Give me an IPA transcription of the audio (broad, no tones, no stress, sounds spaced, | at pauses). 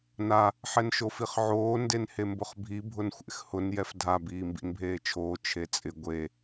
n a | ħ ɛ n ʃ o f i χ ʕ oː n d e n h e m b ʊ χ bʱ i bʱ ʊ n xʷ ḛ x h ʊ n j ɛ f dʱ a b iː m b ḭ n bʱ eː t͡ʃʰ oː t͡ʃʰ e t͡sʼ ɪ ɡʷ e